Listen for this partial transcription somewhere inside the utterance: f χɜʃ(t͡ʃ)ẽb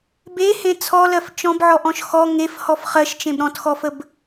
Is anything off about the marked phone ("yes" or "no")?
no